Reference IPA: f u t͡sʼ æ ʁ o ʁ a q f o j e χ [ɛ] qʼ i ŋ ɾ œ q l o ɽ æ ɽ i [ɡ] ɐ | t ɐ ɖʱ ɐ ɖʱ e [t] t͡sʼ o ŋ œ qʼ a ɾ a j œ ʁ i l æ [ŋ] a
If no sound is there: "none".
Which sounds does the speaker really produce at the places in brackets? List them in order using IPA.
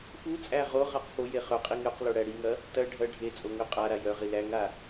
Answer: œ, ŋ, none, ŋ

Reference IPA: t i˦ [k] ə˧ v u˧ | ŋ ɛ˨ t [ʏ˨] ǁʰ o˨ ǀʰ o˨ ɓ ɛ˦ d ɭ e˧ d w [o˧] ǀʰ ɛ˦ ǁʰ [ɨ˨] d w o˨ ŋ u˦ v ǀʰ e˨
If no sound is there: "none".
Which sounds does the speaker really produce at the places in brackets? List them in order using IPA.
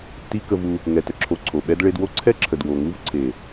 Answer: k, ə˨, o˦, ə˨

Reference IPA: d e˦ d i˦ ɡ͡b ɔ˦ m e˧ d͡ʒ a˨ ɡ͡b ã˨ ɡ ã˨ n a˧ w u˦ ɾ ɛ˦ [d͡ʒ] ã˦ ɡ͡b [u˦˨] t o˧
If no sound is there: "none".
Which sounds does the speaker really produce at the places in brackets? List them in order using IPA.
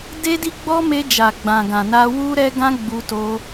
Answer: ɡ, u˧

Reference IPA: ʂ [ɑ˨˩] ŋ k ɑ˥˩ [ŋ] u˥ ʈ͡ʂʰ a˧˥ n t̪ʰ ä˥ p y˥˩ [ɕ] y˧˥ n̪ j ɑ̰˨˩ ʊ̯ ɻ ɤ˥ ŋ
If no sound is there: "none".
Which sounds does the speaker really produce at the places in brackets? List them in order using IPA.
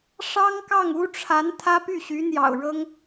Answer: ɑ˥, ŋ, ɕ

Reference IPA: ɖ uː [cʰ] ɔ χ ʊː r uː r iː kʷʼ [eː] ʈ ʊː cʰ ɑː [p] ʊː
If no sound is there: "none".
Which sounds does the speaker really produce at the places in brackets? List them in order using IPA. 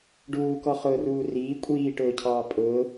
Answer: k, iː, pʼ

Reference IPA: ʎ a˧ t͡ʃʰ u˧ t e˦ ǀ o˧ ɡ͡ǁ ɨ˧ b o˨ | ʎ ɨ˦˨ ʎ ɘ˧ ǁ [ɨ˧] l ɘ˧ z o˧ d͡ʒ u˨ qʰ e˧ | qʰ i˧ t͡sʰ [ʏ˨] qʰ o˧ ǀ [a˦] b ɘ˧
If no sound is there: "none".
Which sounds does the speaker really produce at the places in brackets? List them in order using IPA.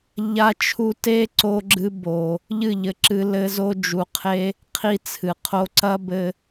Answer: ɨ˧, ɨ˨, ɐ˦

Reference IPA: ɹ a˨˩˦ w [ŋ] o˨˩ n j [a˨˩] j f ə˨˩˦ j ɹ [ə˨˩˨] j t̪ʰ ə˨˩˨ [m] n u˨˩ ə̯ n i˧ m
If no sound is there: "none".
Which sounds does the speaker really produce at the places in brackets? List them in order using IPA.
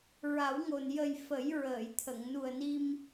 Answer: ŋ, ə˨˩, əː˨˩˨, ŋ

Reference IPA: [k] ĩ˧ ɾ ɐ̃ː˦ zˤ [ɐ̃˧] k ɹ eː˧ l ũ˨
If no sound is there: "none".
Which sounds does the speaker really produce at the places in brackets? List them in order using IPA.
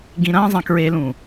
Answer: ɡ, ɐ̃˧

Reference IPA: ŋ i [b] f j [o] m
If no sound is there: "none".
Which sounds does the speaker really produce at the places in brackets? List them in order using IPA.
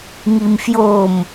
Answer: m, o

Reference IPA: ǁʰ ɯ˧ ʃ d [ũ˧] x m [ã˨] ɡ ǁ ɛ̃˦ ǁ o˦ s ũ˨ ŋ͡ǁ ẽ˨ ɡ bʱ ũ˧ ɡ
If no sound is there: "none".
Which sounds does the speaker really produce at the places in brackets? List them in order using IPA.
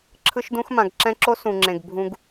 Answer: ũ˧, ã˨

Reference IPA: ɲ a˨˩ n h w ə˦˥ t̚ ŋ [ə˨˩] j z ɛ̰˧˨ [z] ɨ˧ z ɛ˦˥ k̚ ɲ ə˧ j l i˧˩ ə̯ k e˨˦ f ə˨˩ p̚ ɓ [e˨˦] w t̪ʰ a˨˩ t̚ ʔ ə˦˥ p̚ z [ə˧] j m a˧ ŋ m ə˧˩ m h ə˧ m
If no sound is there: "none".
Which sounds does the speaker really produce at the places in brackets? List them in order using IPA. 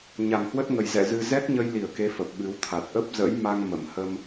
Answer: ə˨˩, z, ɨ˨˦, ə̰˧˥

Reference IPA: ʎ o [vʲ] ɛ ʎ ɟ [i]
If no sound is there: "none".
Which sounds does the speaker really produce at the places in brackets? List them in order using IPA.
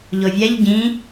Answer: vʲ, ĩ

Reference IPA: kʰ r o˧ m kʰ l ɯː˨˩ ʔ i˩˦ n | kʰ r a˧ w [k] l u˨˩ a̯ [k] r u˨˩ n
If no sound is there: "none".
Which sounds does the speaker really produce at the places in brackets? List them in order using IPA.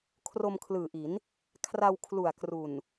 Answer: kʰ, k

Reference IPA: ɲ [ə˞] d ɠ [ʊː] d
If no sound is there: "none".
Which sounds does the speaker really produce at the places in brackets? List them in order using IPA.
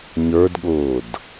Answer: ə˞, ʊː

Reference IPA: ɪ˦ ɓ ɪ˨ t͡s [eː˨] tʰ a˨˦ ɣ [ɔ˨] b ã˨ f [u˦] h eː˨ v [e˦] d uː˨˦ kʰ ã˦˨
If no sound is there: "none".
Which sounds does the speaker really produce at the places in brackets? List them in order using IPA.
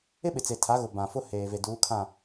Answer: e˨, ʊ˨, ʊ˦, e˨

